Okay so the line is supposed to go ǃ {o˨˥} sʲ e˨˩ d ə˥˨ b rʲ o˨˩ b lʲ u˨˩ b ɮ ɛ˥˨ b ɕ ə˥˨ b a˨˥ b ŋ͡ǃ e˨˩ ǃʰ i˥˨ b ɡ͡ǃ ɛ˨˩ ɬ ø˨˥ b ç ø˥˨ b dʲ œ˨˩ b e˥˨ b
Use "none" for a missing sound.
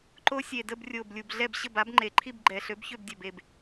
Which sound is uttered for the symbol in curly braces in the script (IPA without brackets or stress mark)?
o˦˥